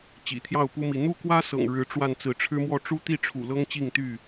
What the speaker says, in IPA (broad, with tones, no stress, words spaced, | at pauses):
t͡ɕḭ˨˩t̪ʰjɑ˥˨ʊ̯pu˦mi˨˦ n̪u˥˨kwä˦sɤ̰˨˩ŋ ɻɻ̩˨˦ ʈ͡ʂwa˥˨n t͡sɹ̩˨˦ʈ͡ʂʰɻ̩˦mwɔ˥˨ ʈ͡ʂu˦t̪i˥˨ʈ͡ʂʰṵ˨˩ lɤ˦ŋt͡ɕi˥˨ŋt̪y˥˨